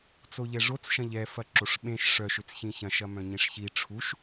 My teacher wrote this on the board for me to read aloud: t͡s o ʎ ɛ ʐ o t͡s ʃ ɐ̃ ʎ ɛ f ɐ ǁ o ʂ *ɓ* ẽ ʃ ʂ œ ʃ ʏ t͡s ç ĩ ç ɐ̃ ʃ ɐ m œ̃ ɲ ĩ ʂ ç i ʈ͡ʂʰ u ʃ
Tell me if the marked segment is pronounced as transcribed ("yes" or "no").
yes